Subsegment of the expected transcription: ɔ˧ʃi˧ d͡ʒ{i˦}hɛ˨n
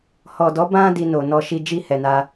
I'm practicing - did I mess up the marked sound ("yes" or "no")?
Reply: yes